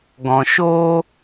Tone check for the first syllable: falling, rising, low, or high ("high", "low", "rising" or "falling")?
low